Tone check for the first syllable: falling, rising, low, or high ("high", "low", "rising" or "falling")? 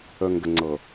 low